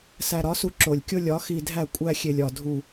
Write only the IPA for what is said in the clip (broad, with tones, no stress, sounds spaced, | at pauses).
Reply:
s æ˨ ɾ ɒ˨˦ s u˦ ǁ o˨ lʲ kʲ o˦ lʲ ɒ˨˦ x i˨ dʱ æ˦˨ kʷʼ æ˦ xʲ e˨ lʲ ɒ˨ dʱ u˨